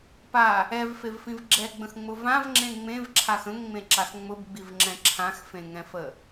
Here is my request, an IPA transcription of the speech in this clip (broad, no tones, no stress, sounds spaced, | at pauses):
p a | ɛ v f e v f ĩ v ɡ͡ǁ ɛ ɡ͡b ə̃ x ŋ͡m ʊ v ã v ŋ͡ǁ ẽ ŋ͡m ẽ v ǁʰ a x ə̃ ŋ ŋ͡m ẽ ǁ a x ŋ͡m ʊ b ɡ͡b i v ŋ͡ǁ ɛ̃ ǁʰ ã x f ẽ ŋ ɛ̃ f ə